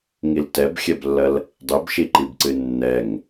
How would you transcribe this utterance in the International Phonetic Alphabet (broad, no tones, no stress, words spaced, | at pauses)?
ŋiltɛbxʲɛblːɐl | dˤibʃiǃibǀɨ nːɛŋ